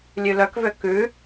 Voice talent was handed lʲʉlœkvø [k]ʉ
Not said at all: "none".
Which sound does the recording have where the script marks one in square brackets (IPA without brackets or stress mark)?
k